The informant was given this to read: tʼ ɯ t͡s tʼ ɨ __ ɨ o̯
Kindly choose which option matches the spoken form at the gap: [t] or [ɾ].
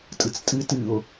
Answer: t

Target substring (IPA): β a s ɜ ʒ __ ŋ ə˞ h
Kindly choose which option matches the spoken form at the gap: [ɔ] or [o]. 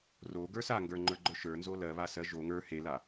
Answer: o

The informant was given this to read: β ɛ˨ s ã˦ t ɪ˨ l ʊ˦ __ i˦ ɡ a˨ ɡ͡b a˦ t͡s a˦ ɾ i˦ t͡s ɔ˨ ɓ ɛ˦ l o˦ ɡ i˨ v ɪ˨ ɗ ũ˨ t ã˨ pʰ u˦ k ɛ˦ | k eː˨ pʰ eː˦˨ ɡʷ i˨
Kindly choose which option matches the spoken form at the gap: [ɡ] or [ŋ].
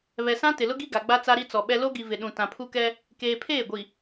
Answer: ɡ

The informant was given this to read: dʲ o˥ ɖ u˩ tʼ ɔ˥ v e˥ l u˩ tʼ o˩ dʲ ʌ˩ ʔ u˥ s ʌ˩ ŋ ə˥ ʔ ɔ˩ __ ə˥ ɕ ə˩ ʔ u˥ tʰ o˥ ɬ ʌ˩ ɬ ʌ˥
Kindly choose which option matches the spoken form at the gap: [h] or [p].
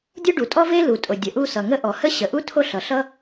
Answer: h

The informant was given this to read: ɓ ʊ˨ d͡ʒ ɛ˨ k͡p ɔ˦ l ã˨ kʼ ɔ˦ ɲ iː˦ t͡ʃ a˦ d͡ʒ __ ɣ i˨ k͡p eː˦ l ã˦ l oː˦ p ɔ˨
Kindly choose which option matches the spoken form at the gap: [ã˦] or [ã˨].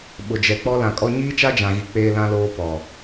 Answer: ã˨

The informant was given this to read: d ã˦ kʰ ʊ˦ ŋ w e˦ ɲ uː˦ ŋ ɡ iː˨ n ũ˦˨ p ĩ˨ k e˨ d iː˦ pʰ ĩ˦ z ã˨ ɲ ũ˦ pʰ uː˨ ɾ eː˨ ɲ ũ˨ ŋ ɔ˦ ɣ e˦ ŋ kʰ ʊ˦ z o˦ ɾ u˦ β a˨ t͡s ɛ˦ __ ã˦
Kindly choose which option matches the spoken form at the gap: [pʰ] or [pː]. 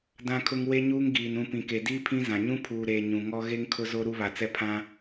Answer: pʰ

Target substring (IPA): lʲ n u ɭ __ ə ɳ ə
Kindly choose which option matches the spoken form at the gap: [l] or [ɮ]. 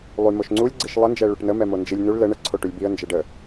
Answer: l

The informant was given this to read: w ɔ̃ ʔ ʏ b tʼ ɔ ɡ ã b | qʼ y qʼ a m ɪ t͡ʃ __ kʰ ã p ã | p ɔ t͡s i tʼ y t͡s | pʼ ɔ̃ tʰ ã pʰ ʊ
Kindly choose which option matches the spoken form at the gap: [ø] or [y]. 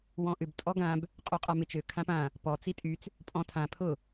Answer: ø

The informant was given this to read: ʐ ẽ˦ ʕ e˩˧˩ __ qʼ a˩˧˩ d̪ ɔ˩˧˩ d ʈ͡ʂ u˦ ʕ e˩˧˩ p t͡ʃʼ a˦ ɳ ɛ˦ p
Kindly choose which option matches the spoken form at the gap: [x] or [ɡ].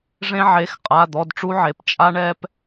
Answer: x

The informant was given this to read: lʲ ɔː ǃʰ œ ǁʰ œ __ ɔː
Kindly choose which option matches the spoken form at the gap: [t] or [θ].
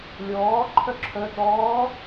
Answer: t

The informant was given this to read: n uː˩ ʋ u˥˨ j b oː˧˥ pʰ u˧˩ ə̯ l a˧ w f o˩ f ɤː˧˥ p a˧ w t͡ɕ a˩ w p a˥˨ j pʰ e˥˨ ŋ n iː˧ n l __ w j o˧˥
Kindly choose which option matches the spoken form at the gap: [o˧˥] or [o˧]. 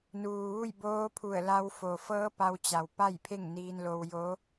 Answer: o˧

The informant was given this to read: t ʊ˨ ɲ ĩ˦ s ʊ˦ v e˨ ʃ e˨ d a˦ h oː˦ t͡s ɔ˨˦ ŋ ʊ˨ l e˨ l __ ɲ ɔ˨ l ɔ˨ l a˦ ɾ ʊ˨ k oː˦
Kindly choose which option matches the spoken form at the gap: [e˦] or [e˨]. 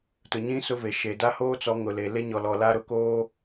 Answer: e˦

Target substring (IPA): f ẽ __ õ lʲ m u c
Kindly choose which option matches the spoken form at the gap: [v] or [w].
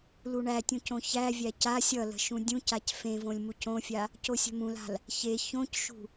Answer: v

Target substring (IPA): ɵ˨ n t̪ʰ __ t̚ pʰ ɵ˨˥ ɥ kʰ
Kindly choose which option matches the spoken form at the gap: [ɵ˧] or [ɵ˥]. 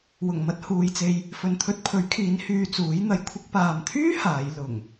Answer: ɵ˧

